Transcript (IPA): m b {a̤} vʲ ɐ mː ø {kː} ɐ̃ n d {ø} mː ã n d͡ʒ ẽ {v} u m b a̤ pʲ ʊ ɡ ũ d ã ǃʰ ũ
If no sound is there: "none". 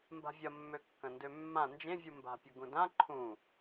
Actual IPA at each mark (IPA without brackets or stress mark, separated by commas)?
a̤, kː, ø, vʲ